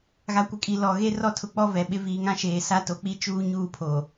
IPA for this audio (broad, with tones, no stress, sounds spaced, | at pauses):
ɣ a˨ kʷ ɪ˨ kʼ i˨ l ɔ˨ ɣ e˦ r ɔ˦ tʰ ʊ˨ k͡p ɔ˦ v ɛ˨ ɓ ɪ˦ v iː˨ ŋ ã˦ ʃ eː˨ s a˦ t o˨ k͡p i˦ t͡ʃ uː˦ ɲ uː˦˨ pʰ o˨